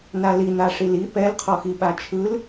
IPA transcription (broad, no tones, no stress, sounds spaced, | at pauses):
n a l i n̪ a ʂ i l i p ɛ l qʰ ɔ x i ɓ a t͡ʃʰ ɯ l